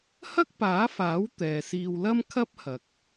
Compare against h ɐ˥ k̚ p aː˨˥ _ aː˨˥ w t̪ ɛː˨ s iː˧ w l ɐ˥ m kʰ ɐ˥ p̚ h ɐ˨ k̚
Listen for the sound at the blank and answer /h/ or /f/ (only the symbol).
f